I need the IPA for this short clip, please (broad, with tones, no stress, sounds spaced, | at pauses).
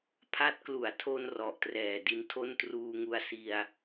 pʰ a˦˥ t̚ k l u˩˦ a̯ tʰ o˧ n r ɔ˨˩ ʔ t r ɛː˨˩ d i˦˥ n tʰ o˥˩ n t r uː˧ ŋ u˧ a̯ s i˧ a̯